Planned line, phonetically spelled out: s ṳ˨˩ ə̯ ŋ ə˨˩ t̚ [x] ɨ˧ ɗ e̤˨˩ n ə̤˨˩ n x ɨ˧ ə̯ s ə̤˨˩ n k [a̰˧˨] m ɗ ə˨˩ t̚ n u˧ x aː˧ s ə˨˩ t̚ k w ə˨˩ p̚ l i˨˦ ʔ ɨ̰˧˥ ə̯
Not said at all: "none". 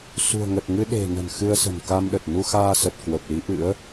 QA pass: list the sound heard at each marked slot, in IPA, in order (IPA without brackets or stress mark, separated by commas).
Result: ŋ, a˧